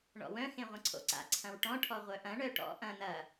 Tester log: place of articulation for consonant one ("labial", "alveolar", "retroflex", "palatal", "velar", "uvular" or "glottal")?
retroflex